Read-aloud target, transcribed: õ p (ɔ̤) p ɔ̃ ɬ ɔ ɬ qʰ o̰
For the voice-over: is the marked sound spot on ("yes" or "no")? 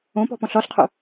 yes